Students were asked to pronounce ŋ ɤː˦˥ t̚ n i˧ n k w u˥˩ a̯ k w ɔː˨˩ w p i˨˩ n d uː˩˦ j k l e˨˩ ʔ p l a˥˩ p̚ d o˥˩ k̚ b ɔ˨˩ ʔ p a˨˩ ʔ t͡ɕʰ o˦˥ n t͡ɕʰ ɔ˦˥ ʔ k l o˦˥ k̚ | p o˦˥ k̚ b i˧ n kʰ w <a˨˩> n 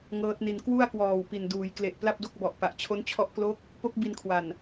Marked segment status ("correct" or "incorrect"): correct